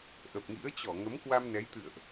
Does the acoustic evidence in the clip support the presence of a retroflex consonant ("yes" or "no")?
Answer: no